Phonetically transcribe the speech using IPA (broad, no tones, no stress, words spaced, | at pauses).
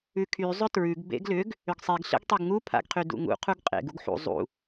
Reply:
ʉkʰy zˤʏtɹʉɡ bḛɡlʏɡ | ʏɡsˤeɡ ɬḛɡtˤyɡŋu pʰa̰ɡqʰydṵŋṵ qʰuɡqʼḛɡ uɡħṵ zˤṵ